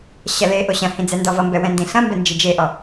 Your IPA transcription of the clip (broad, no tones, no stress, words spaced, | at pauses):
ɕɐleʔo ɕɐ̃hĩ d͡zɛndɔvʌmbɛ wɛ̃ndĩɬɐ̃mbɛ nd͡ʒid͡ʒeʔɔ